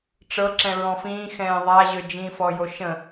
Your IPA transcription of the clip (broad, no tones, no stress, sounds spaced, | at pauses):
ʈ͡ʂ ɤ ǁ ɛ̃ ɹ ɔ̃ f ĩː x ɛ̃ː ðˤ a ʑ ø d͡ʒ ĩ f ɔ j o ʃ ə̃